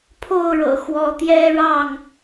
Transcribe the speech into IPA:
pʰ o˥˨ ʊ̯ ɻ ɤ̰˨˩ x w ɔ˨˦ t̪ j ɛ˦ ɻ ɑ˥˨ ŋ

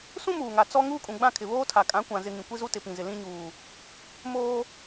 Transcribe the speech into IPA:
s ũ˦ m uː˨ ŋ a˨ t͡s ɔ˦ ŋ uː˦ kʼ ũ˨ ɡ͡b ã˦˨ kʰ ɪ˨ β oː˦ tʰ a˨ kʼ ã˨˦ kʷ ã˨ z ɪ˨ ŋ ĩ˨ kʷ i˦ z u˦ t ɪ˨ p ĩ˨ z ɪ˨ l ĩ˦ ɲ uː˨ | m oː˦

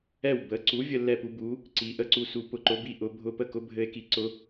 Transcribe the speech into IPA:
ɛ˥˩ w b ə˩˥ ǀ u˩˥ vʲ ə˧ lː ɛ˥˩ p u˧ b u˩˥ | ǀ i˩˥ ʔ ə˧ ǀ u˧ s u˩˥ p ʊ˩˥ ǃ ʊ˩˥ b i˧ ʔ ʊ˩˥ bʱ ʊ˧˥˧ p ə˥˩ k ʊ˧˥ bʱ ɘ˧˥ e̯ k i˩˥ ǀ ʊ˧˥

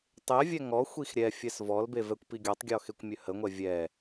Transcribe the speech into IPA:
tˤ e vʲ ɛ ŋ ɔ xʷ i x ɾʲ ɛ fʲ ɛ s v ɔ l b e v ɛ kʷ p i ɡʲ ɔ tˤ ɡʲ ɔ x e kʷ mʲ ø h ə ŋʷ ɛ vʲ ɛ

